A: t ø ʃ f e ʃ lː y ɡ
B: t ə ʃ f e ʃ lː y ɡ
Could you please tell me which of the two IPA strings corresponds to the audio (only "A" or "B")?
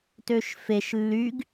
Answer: A